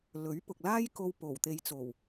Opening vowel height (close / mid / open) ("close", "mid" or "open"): mid